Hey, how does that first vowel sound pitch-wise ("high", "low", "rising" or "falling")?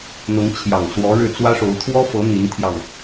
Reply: rising